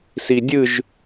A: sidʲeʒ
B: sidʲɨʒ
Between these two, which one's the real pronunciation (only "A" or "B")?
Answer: B